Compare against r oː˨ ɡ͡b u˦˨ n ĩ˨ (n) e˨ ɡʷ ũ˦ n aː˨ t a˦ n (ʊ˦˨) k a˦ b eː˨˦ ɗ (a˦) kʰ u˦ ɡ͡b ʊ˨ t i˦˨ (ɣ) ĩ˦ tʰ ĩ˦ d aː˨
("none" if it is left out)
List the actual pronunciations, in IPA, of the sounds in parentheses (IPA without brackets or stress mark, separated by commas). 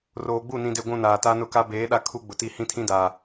d, ʊ˦˨, a˦, h